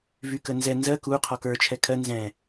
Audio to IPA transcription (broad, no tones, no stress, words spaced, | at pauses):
vykənzɛ nzɜ ku qʰɔkə˞ t͡ʃʰɛkʰɜ nzɛ̃